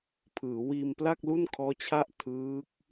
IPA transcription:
pʰ ɯː˩˦ w iː˧ m p l a˥˩ k̚ l u˥˩ n kʰ ɔː˦˥ t͡ɕʰ a˥˩ ʔ tʰ ɯː˦˥ k̚

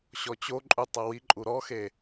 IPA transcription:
ɕ ɔ t͡ɕ o ǃʼ u tˤ ɤ w i ǃʼ u ɾ ɔ x e

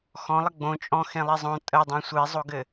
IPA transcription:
x ɔ̃ lˠ ə ɡ͡b õ t͡ʃʼ ɔ̃ x ẽ lˠ i zˤ õ tʼ ə dˤ ẽ sʷ e zˤ o ɡ ɘ

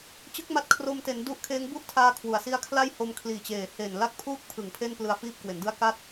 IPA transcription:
t͡ɕ ɯ˦˥ k̚ m a˦˥ t̚ kʰ r o˧ m t e˩˦ n d u˦˥ ʔ kʰ eː˦˥ ŋ b u˥˩ ʔ tʰ aː˧ kʰ w u˩˦ a̯ s i˦˥ a̯ kʰ l a˥˩ j h o˧ m kʰ l iː˨˩ t͡ɕ eː˨˩ h e˨˩ n l a˥˩ k̚ pʰ uː˥˩ k̚ pʰ ɯ˨˩ ŋ pʰ e˥˩ n p l ɯ˧ a̯ f iː˥˩ p̚ k w e˩˦ n d ɯ˥˩ a̯ k a˥˩ t̚

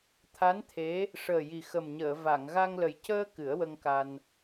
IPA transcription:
t̪ʰ a˧˥ n t̪ʰ e˧˥ | ʂ əː˨˩ j i˨˩ x ə˨˩ m ɲ əː˨˩˨ v a˨˩˨ ŋ ɣ a˧ ŋ l ə˨˩ j c əː˧ k ɨ˨˩˦ ə̯ w ə˧ ŋ k a˧ n

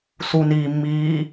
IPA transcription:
s u n iː mː iː

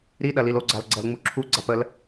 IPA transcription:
ɾ i ɗ ɐ l i l o ɡ͡ǀ a l ɡ͡ǀ ɐ l ŋ͡m u ǁʰ u ɡ͡ǀ a p ə l

